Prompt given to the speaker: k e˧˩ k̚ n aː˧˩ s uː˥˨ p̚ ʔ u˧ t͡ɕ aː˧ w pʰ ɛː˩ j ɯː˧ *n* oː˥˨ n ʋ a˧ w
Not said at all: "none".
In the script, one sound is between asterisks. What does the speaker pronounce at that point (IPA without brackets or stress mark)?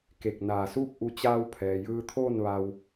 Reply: t̪ʰ